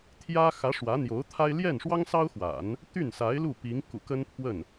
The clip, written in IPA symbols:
t̪ʰjä˥xä˧˥ ʂwä˧˥ n̪jo˧˥ʊ̯t̪ʰa˥ɪ̯ ljɛ˥˩nʂwɑ˥ŋsɑ˥ʊ̯xwa̰˨˩˦n | t̪y˥˩nsa˧˥ɪ̯lu˥˩ pi˧˥ŋ kṵ˨˩kə˥npʰwə˥˩n

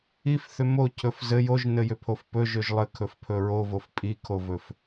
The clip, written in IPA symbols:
ifθʏ mocʰɵf zɘ joʒnɘjʏpʰof pɵʒɵʒ lˠɘkʰɵfpʰɵ ɹovof pʼikʰovɵf

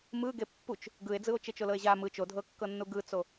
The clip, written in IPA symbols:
mɯ ɡepːut͡ʃ | ɡɯe̯d͡zɯo̯ t͡ʃet͡ʃolɤe̯ʑa mɯ t͡ʃodʱɤkːɤnːu ɡɯt͡so

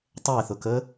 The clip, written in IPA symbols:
tˤɛːθʊkəː

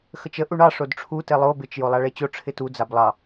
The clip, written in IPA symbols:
xət͡ʃə ʔuɳɑ ʂodʈ͡ʂʰu telˠo bɪt͡ʃ jolˠaɭet͡ɕo ʈ͡ʂʰɪtu d͡zablˠɑ

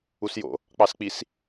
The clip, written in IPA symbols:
usjo̰ | k͡pɑsk͡pis

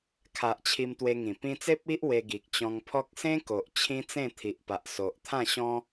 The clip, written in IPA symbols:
kʰa˨ʔ t͡ɕʰi˧mt̪we˧ŋĩ˨˩ pĩ˧t͡se˦p̚ i˦ʔ we˧ɡi˨k̚ t͡ɕɔ̃˧ŋpʰɔ˦k̚ sẽ˦ko˨ʔ t͡ɕʰĩ˦t͡sẽ˥˧ t̪ʰi˨ʔpa˨ʔso˨ʔt̪ʰã˥˧ ɕɔ̃˦

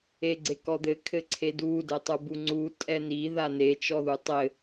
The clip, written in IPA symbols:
eɡ͡ǀekɔd̪ɘ kʰɘǀʰedu dɘtˤubuŋ͡ǀu tʼɛni ðane t͡ʃɔðutˤɘ

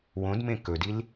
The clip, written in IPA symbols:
wõdmẽ kɵdil

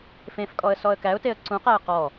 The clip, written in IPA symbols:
fẽfkʼɔə̯ sɔə̯kæʊ̯teə̯ ǀũqæə̯ qɔ

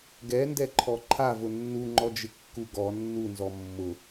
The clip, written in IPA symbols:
ɡɛndɛǃʰɔ ǃʰavʊ nːuŋ͡ǃɔd͡ʒɪ kːuɡɔ nːunzɔ mːʊ

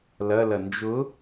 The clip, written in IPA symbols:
lɐlɐ nd͡ʒʊ

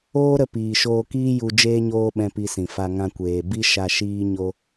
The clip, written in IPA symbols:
oː˦ɾə˧piː˨ ʃoː˧kiː˦ju˧ d͡ʒeː˦ɲoː˦ɓɛ̃˧ pi˧sĩ˨fa˧ ŋã˧kʷeː˨ bi˦ʃa˧ ʃiː˦ ɲo˦

